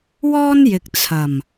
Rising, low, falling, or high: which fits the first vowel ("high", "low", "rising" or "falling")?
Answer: high